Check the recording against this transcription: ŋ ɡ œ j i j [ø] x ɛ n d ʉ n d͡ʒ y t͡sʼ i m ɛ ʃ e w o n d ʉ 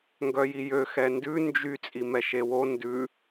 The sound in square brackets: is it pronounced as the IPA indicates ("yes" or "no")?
yes